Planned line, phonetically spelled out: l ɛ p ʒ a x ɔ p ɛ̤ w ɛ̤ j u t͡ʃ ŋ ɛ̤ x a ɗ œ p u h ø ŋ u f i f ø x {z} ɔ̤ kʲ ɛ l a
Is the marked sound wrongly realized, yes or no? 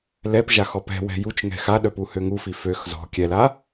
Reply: no